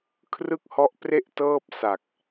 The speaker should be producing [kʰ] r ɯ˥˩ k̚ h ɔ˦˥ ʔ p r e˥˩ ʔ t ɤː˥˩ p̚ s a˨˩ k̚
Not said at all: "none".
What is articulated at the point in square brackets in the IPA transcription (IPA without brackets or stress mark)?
kʰ